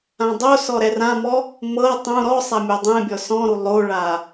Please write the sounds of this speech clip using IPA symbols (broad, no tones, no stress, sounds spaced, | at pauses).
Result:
ã dˤ o s ɔ ɾ ɛ r ã m ɔ | m ɤ tˤ ũ ɾ ɔ sˤ a mʲ o dˤ ɛ̃ bʲ ɔ s ɔ̃ ɾ u lˠ o ɭ a